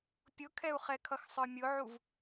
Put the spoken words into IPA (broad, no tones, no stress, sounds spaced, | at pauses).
pʲ ʊ kʰ ɛ u̯ χ ɛ kʰ ʌ x sˤ ə˞ mʲ ʊ ʕ u v